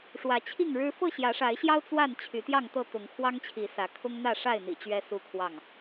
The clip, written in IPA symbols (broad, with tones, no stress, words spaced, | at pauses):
ʂwä˨˦t͡ɕʰi˥˨ŋɻɻ̩˦ fɤ˥˨ɕjä˨˦ʂa˨˦ɪ̯ɕjɑ˦ʊ̯ t͡swa˥˨n t͡ɕʰy˨˦t̪jɑ˥˨ŋt̪ɤ˥˨ t̪ʊ˨˦ŋkʰwɑ˦ŋt͡ɕʰi˨˦ sä˨˦ kʰʊ˦ŋn̪ä˥˨ʂa˥˨ɪ̯n̪ḭ˨˩ t͡ɕɥɛ˦su˥˨kʰwɑ˥˨ŋ